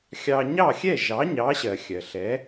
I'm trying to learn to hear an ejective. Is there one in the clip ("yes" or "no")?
no